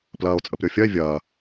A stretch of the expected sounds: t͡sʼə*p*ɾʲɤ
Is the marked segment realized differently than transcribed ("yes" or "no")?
no